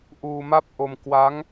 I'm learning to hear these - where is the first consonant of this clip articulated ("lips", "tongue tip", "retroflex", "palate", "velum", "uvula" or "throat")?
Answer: throat